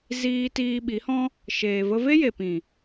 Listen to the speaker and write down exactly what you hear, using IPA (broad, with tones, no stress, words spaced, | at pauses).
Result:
ziː˦ tiː˧ɓi˨˦hɔ̃˦ | ʃeː˨və˧ ve˦je˨pĩ˨